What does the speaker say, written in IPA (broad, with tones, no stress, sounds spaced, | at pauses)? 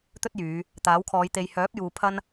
t̪ ɵ˥ t̚ j yː˨˧ | t̪ aː˨˥ w kʰ ɔː˨˧ j t̪ e˨ j h œː˨˥ p̚ j uː˨ pʰ ɐ˥ n